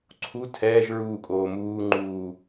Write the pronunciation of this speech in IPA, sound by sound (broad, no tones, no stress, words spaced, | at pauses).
ǀʰu tʰɛːʒ ɹuːkʼoː muːŋ͡ǃuː